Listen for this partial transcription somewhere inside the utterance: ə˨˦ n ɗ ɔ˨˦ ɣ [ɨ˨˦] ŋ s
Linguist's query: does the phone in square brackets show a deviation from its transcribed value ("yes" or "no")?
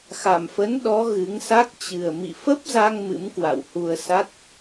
no